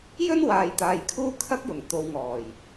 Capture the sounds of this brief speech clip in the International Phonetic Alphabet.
j ɵ˥ n w aː˨ j t̪ aː˨ j kʰ uː˥ kʰ ɐ˥ k̚ j ʊ˨˩ ŋ t̪ o˨˧ w ŋ ɔː˨˩ j

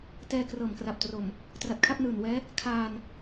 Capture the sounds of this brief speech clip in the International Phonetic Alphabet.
t ɛː˧ k r ɤː˨˩ m k r a˨˩ p̚ t r o˨˩ m | t r a˨˩ t̚ kʰ a˥˩ p̚ n ɯː˨˩ n w ɛː˦˥ | kʰ aː˧ n

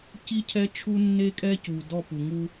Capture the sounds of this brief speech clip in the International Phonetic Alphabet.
c i˦ cʰ ɛ˦ t͡ʃʰ u˦ nː e˦ kʼ ɛ˦ c u˨ d ɔ˦˨ p u˨ ŋ u˦

